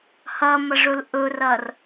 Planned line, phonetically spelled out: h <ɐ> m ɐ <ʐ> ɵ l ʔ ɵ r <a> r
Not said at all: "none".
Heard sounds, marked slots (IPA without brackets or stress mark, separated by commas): ɐ, ʐ, ɐ